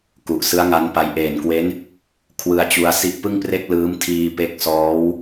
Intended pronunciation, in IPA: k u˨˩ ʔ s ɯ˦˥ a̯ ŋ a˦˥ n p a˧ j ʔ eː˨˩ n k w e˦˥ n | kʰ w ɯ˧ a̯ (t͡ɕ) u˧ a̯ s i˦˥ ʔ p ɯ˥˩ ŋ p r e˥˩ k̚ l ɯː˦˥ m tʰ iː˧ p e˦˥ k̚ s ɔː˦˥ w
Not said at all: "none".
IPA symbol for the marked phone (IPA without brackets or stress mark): t͡ɕ